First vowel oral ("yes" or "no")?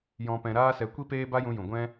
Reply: no